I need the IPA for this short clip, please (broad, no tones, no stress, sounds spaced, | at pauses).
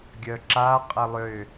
ɡʲ œ ǁ a qʼ ɐ lˠ ʏ